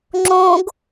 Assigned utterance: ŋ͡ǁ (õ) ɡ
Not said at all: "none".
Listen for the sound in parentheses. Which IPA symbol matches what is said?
õ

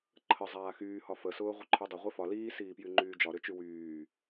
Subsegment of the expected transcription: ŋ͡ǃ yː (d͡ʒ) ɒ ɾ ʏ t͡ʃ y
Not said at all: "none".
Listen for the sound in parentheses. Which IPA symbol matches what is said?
d͡ʒ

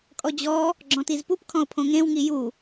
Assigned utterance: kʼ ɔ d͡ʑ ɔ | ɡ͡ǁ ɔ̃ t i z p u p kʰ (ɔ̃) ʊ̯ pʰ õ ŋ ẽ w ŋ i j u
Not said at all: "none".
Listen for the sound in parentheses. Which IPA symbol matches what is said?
ɔ̃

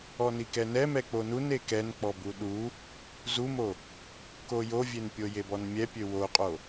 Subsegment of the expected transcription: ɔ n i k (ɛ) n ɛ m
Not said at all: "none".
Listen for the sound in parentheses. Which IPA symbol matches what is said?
ɛ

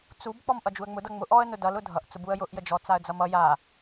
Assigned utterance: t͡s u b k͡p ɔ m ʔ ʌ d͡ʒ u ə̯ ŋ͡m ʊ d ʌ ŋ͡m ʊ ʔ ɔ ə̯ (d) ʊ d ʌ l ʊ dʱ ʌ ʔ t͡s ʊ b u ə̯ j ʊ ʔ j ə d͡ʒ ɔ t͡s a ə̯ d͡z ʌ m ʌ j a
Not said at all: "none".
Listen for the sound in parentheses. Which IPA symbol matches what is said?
n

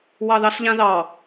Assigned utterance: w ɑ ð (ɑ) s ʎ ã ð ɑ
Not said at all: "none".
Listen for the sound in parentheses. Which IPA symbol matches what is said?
ɑ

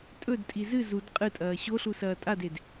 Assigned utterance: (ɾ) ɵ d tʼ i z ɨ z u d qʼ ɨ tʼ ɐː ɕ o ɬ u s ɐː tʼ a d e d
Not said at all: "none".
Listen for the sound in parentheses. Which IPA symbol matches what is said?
tʼ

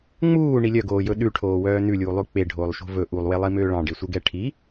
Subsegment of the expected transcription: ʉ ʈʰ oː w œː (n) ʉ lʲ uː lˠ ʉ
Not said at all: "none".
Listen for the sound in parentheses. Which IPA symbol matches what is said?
n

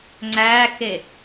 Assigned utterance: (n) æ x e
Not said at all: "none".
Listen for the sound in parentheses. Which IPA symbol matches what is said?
ŋ͡ǀ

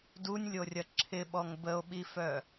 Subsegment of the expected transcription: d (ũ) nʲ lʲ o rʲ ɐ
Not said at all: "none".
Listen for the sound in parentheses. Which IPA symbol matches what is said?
u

